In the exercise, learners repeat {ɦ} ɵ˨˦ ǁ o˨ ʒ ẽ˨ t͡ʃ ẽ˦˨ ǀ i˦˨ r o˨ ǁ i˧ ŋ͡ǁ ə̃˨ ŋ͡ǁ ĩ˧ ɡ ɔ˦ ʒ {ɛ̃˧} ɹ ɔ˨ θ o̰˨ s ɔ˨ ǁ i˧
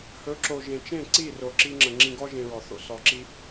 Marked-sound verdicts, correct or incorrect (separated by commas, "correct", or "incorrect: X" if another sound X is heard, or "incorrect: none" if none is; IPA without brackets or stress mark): incorrect: h, incorrect: ẽ˧